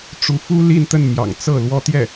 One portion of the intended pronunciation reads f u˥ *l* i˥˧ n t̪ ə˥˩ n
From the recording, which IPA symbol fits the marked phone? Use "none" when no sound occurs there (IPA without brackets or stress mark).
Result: l